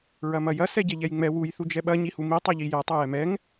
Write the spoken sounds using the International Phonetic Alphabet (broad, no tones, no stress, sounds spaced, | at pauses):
ɹ ɐ m ɐ j ɐ s ɛ ɟ ɛ ʎ ɛ j ŋ͡m ɛ w u j θ u d͡ʒ ɛ ɓ ɐ ɲ i h u m i tˤ ɐ ʎ i j ɛ tˤ ɐ j ɛ m ɛ ŋ